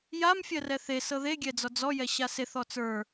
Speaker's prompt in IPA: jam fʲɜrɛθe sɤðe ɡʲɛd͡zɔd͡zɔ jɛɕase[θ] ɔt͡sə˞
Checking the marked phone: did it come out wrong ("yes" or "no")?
no